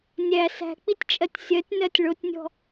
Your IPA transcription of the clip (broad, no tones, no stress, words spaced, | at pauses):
nʲæ sæ̤k͡pitʲt͡ʃʼɜtʲ sʲɜtʲnɜtʲ ɭotʲnʲɔ̤